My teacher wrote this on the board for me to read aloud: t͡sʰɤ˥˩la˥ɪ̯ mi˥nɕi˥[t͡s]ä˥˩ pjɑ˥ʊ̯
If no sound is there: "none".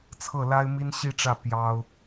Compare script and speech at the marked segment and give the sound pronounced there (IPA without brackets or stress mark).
ʈ͡ʂ